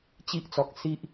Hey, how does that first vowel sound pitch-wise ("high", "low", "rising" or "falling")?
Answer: high